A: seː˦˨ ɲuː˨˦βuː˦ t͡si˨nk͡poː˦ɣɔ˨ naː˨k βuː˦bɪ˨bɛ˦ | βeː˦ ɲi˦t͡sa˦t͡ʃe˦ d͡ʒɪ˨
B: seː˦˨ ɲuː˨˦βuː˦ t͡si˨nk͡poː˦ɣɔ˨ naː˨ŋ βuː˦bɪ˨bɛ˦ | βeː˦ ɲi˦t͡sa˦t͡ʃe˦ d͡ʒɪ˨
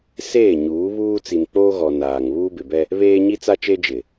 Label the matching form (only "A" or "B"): B